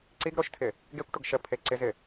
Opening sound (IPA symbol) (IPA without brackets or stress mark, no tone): ǀ